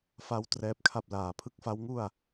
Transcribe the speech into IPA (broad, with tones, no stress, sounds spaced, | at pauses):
f a˦˥ w t r ɛː˦˥ p̚ kʰ a˥˩ p̚ l aː˨˩ pʰ ɯ˦˥ k̚ f a˦˥ w ŋ u˥˩ a̯